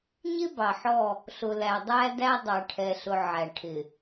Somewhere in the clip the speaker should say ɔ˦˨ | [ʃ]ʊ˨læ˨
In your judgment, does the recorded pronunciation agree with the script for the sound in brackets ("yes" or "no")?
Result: no